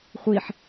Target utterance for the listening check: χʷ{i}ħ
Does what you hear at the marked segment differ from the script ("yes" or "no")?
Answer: no